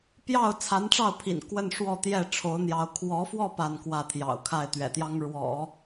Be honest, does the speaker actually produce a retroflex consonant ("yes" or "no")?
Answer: yes